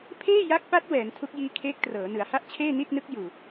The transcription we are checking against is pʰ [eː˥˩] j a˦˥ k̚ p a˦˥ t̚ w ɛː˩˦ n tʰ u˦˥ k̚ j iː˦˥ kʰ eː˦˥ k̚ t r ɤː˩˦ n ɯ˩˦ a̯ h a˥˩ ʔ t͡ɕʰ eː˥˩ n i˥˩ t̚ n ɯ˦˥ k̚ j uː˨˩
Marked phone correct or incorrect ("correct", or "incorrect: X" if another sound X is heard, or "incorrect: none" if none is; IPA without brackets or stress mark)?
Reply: correct